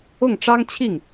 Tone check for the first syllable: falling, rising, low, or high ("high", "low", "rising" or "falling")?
falling